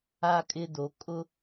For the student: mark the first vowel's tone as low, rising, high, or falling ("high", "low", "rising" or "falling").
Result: high